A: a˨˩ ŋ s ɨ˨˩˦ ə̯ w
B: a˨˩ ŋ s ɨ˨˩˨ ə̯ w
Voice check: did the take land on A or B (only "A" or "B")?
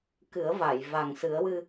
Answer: A